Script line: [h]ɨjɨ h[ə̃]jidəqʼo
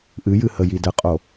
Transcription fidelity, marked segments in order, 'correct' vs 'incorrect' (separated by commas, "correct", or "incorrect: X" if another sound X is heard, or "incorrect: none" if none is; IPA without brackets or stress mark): incorrect: ʔ, incorrect: ə